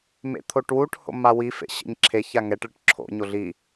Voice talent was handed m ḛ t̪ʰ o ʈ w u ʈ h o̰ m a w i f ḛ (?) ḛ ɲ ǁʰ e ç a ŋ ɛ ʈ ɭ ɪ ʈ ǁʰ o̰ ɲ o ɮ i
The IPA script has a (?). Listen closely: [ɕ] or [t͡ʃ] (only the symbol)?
ɕ